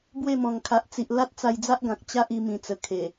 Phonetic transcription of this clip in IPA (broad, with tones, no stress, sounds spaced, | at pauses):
b w e˥˧ m ɔ̃˨˩ ŋ kʰ a˨ ʔ t͡s i˨ ʔ l a˦ t̚ t͡s a˧ j d͡z a˦ ʔ ɡ ã˨ k̚ t͡ɕ a˦ ʔ i˧ m ĩ˨˩ t͡s ə˨˩ kʰ e˨˩